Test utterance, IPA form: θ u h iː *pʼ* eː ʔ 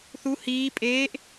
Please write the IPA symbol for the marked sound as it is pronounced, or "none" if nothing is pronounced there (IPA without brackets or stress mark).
pʼ